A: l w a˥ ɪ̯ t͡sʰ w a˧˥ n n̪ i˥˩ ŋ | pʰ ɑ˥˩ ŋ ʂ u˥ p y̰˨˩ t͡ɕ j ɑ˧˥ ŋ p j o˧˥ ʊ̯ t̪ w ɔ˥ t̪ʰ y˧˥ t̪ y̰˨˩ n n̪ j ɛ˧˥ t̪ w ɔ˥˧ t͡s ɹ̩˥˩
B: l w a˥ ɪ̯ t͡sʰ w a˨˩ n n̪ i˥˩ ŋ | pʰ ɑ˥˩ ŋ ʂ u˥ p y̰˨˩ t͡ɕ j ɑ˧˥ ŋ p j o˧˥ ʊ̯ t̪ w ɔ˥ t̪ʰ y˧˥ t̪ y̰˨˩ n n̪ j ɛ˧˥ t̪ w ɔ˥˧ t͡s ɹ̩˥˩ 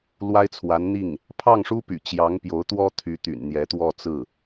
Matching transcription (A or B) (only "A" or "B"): A